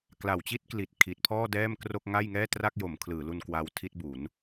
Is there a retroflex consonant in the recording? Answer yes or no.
no